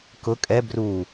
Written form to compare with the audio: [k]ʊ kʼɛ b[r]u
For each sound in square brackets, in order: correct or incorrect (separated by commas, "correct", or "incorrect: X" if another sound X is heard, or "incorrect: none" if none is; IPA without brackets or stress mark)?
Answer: correct, correct